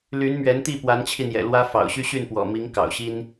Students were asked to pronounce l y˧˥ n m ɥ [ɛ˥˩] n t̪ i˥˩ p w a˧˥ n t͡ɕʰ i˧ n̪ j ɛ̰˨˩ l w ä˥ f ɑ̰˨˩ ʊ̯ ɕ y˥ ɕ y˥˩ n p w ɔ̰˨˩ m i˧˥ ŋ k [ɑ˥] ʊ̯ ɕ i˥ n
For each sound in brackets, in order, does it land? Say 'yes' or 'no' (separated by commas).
no, no